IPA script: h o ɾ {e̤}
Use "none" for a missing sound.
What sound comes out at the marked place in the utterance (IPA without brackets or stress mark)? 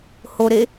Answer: e